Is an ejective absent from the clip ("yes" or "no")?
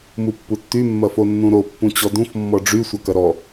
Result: yes